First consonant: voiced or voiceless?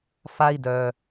voiceless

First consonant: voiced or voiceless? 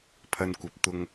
voiceless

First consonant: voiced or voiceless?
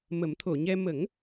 voiced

